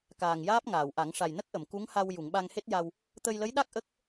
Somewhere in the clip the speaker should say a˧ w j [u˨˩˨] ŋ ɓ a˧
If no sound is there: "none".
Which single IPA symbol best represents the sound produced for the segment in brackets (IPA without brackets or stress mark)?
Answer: u˨˩˨